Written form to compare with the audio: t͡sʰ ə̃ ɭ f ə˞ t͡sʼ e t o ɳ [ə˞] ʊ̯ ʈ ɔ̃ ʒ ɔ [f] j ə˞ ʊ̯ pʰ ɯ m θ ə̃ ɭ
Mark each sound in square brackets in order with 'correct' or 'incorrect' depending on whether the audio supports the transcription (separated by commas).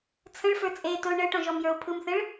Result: incorrect, incorrect